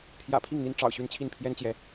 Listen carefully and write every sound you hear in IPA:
t̪ʰ j ä̰˨˩ pʰ i˥˩ ŋ n̪ i˥ n ʈ͡ʂ ɑ̰˨˩ ʊ̯ ɕ y˥˧ n t͡ɕʰ i˥˩ n pʰ j ɛ˥ n t͡ɕ j ɛ˧˥

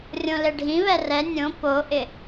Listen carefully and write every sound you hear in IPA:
rʲ õ l e ɖʱ ĩ β ɛ r ɛ nʲ õ p o ʔ ɪ

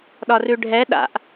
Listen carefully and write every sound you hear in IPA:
ɗ ɒ r ʉ ɖʱ ɛ ɗ a̰ ʔ

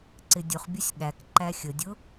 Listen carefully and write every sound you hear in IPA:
ǀ ɪ dʲ ʊ χ bʲ ʊ sʲ ɠ æ k ǃ æ xʲ ə dʲ ʊ

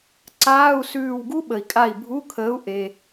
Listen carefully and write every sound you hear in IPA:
ǀ aː˧˥˧ u̯ s ʉː˧˩ w ɡ u˦˥ ɓ ə˩ i̯ kʼ a˧˩ i̯ bʱ u˧˥˧ kʰ əː˨˥ u̯ ʔ e˩

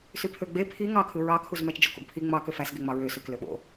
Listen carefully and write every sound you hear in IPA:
s y pʰ ø ɡ͡b e pʰ i ŋ ɑ kʰ ɯ ɹ ɑ kʰ u z m æ t͡ʃ d͡ʒ o k o̰ ɡ pʰ i ŋ͡m ɑ k ø f æ s ɡ e ŋ͡m ɑ ɹ ø s ø k l ø ɓ o̰

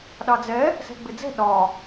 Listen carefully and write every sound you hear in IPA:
ɗ ɑ d͡z ɛ | s ɛ̤ ɡ͡b ɪ d͡z ɛ̤ ɗ ɒ

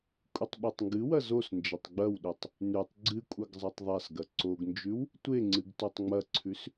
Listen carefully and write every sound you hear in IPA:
kʷʼ ɨ tˤ ɓ e tˤ ŋ ɡ ɨ w ɐ z o s n d͡ʒ ɐ tˤ ɡ͡b ɐ w ɗ ʉ tˤ | n ʉ tˤ ɡ͡ǀ ɨ kʷʼ ɐ ɡ zˤ a tˤ ðˤ a s ɡ ɐ ǀ o ɡ n d͡ʒ ʉ w | tʷ e ŋ͡ǀ ɨ ɡ t o tˤ ŋ͡m ɐ ǀʰ ʉ s

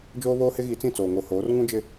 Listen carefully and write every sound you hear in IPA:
d͡ʒ oː˦ β oː˦ h ɪ˦ ɣ i˨˦ t͡s ĩ˦˨ t͡s oː˨ ŋ o˨ h oː˨˦ r ŋ ũ˦ d͡ʒ ɪ˦

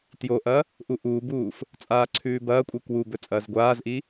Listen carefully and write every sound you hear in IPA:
t j o ʔ ɐ | ʔ u ʔ uː b uː f | t͡sʼ aː ǀʰ ʉː b ɐː kʷʼ ɨ k w u b ɵ t͡sʼ ɐː z ɡʷ aː z ʔ i

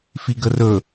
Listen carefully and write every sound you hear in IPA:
f i ɡ ə r ɵ

